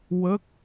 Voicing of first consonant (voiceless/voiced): voiced